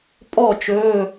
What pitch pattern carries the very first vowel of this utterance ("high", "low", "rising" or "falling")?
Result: falling